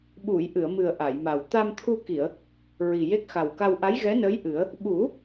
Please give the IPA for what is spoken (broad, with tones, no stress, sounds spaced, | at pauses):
ɓ u˨˩˨ j ʔ ɨ˨˩˨ ə̯ m ɨ˨˩ ə̯ ʔ a˨˩˨ j m a˨˩ w t̪ a˧ m t̪ʰ u˧ k i˨˩˨ ə̯ | ɹ i˨˩ j e˦˥ k̚ x a˨˩ w k a˧ w ʔ a˧˥ j ɣ ɛ˧˥ n əː˧˥ j ʔ ɨ˨˩˦ ə̯ | ɓ u˨˩˦